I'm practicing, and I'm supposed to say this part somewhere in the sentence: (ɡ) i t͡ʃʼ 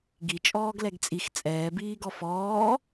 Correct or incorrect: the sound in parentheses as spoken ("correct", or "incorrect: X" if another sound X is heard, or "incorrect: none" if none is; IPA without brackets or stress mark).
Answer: correct